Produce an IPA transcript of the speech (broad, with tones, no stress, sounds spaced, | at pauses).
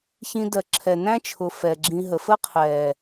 ç ĩ˧ d ɜ˨ ǁʰ ɛ˨ n æ̃˦ t͡ʃʰ ʊ˨ f ɛː˨ ɡ͡ǁ ĩ˧ ɦ ə˨ f ə˦ qʰ ɛː˨